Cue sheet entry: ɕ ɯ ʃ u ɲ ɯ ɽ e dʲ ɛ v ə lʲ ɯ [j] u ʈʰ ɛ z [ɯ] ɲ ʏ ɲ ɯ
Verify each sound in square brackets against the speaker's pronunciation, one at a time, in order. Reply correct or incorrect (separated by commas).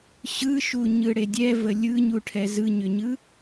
incorrect, correct